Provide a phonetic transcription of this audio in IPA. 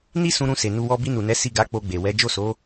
n i˦ s ũ˧ ɾ ũ˧ s e˨ n u˧ w ɔ˧ b i˧ n u˨ n ɛ˨˦ s i˦˨ ɡ a˨˦ k͡p o˧ ɡ͡b e˨ w ɛ˨˦ d͡ʒ o˦˨ s o˨˦

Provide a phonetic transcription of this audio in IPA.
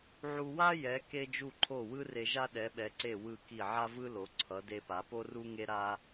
ʕ u˧ w a˥ j ɛ˩˧ k e˧ d͡ʒ u˧˩ ǃʰ o˧˩ w ɯ˥ r e˧ ʒ a˥ ɗ ɛ˩˧ ɓ ɛ˩˧ ǀ e˧˩ w ɯ˧˩ k i˧˩ ʕ a˥ v ɯ˥ l o˩˧ ǀʰ ʌ˩˧ d e˧ p a˩˧ p o˥ r u˥ ŋ e˥ ɾ a˥

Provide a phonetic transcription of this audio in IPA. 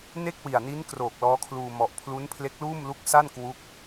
n e˥˩ k̚ w i˨˩ a̯ n i˦˥ n k r oː˨˩ k̚ l ɔː˦˥ kʰ l uː˧ m ɔ˨˩ ʔ pʰ l u˦˥ n pʰ l e˦˥ k̚ l uː˥˩ m l u˦˥ k̚ s a˥˩ n k w u˦˥ k̚

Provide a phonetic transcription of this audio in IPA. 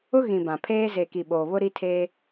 ʊ˦ ɣ ĩ˨ b ã˨ pʰ eː˦ z e˨ k i˨ ɓ oː˨ β ʊ˦ ɾ i˦ tʰ eː˦

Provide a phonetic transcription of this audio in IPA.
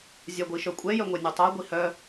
zʲ a ɡʷ i ʃ œ kʷʼ ɛ j œ ŋʷ ɛ nʲ o tˤ a ɡʷ i h œ

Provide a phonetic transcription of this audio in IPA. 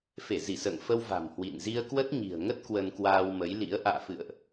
f e˧˩ z i˧˩ s ə̰ː˧˨ ŋ f ə˧ w v a̤˨˩ m h w ḭ˧˨ n z i˧ ə̯ k w ə˦˥ t̚ ɲ i̤˨˩ ə̯ ŋ ə˦˥ t̚ k w ə˧ n k w aː˧ w m ə˨˦ j l ḭ˧˥ ə̯ ʔ a̰ː˧˨ f ɨ̰˧˨ ə̯ ʔ

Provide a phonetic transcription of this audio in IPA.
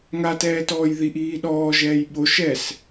ŋ a t ɛː t ɔː j ð i ʔ iː ɗ ɔː ʒ ɛː j ɓ o ʃ ɛ s

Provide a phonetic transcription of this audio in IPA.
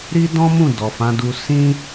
ɾ i˦ d ɔ̃˦ m ũ˦˨ d ɔ˨ f ã˨˦ d u˧ s ĩ˦

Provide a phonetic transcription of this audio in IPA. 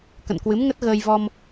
k ə̰˧˨ n k w ɨ˨˦ m ŋ ə˦˥ t̚ ɣ əː˧ j v ɔ˧ m

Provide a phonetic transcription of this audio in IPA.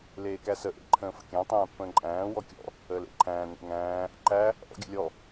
l eː k æ s ə ʔ ḛ ǃʰ ə̃ː f ə̰ kʲ æ̃ tˤ æ̃ː pː ə̃ː ǃʼ æ̃ː w ɔ kʲ ɔ̰ | əː l ḛ ǃʰ æ̃ː n ḛ ŋ æ̃ː | ǃ æ | ʔ ɔ̰ ɡʲ ə̰ lʲ ɔ

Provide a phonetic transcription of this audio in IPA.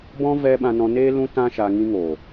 b ɔ̃˦ v ɛ˧ ɓ ã˧ n ɔ̃˧ n eː˦ l ũ˦ t ã˦ ʃ a˧ ŋ ĩ˧ ŋ oː˨

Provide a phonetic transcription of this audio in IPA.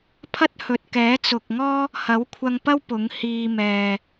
pʰ ɐ˥ t̚ h ɵ˨ t̚ k ɛː˨˥ t͡s ʊ˨ k̚ ŋ ɔː˥ | h ɐ˨˥ w kʷʰ ɐ˧ ŋ p ɐ˥ w p ʊ˨˥ ŋ h iː˧ m ɛː˨

